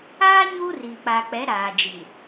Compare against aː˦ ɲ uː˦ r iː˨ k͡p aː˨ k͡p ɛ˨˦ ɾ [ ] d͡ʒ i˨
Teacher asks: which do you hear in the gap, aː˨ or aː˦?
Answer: aː˨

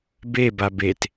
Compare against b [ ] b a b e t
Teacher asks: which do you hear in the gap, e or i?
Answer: e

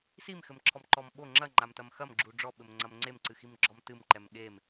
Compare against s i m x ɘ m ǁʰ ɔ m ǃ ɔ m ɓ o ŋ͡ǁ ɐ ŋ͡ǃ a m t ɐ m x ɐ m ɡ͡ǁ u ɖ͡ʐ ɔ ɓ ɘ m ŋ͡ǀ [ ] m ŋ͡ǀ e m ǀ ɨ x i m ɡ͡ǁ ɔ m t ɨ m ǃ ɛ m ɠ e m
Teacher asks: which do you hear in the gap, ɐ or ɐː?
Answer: ɐ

